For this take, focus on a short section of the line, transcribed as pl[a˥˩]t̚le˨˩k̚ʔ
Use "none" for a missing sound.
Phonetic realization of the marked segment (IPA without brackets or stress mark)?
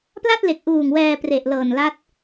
a˥˩